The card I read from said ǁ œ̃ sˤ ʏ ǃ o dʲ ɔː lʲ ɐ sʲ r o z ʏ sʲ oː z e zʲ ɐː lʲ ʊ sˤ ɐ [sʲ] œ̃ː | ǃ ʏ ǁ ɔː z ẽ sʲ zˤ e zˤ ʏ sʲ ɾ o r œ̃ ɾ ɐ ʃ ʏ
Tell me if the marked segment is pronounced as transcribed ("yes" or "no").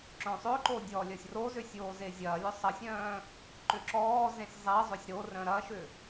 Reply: yes